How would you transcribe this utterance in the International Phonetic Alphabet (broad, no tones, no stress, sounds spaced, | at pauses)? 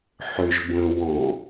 ħ ʏ ʒ b ə̃ w ɔ̃